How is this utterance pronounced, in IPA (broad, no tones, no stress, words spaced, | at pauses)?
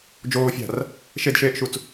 d͡ʒoːfʲa̤r | ʃedʃeːʔʃut͡s